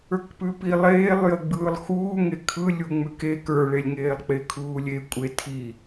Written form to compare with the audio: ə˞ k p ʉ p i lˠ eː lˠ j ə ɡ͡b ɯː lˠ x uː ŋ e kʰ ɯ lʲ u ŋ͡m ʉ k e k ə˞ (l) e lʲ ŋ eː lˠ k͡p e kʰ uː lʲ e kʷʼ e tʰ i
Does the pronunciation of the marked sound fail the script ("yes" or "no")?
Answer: yes